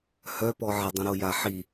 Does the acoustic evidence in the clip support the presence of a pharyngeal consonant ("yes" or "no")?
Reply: yes